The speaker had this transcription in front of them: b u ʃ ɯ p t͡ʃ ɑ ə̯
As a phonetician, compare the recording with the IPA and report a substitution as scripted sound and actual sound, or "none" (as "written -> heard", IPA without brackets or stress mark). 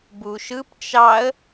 none